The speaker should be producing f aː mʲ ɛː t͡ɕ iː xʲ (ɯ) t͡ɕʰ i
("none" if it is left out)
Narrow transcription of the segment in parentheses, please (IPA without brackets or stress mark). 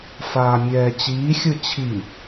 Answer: ɯ